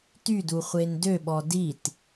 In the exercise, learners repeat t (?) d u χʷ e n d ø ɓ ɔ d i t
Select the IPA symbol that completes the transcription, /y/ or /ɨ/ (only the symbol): y